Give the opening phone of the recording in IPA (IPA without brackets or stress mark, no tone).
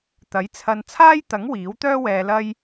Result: t̪